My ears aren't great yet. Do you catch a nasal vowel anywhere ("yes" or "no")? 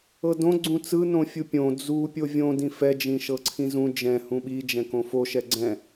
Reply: yes